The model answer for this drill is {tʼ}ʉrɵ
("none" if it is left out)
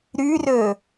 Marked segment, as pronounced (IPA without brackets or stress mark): ɾ